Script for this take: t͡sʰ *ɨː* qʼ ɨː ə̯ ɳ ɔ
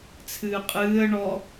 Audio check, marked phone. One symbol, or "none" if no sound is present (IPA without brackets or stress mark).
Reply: ɨː